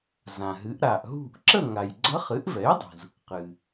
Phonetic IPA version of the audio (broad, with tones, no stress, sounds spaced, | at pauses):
z ã˩ ɦ ɨ˩˧ ʔ ɾ a˩ ʔ ɦ ṳ˥˨ ʔ ǁ ə˥˨ ŋ a˩ j ɡ͡ǀ ə˧˥ χ ɨ˩˥ ʔ v ɛ˩˥ j dˤ ṳ˩ z | q ɨ˩